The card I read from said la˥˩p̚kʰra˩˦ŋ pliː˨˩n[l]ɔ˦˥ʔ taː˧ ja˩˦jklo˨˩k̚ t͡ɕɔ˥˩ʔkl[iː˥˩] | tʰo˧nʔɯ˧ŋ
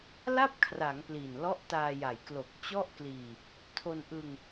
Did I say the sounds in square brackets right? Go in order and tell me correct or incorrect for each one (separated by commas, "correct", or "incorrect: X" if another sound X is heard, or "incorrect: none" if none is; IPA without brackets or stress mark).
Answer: correct, incorrect: iː˧